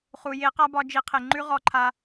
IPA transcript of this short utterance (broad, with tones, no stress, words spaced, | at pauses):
χu˨je˦ qa˦bɒ˧ d͡ʒi˧qʰe˨ ŋ͡ǃʉ˦ ʁɔ˧ǃʰa˧